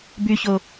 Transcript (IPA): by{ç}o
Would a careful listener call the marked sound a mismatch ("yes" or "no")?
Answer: no